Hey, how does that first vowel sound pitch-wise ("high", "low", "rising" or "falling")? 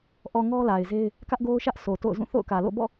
low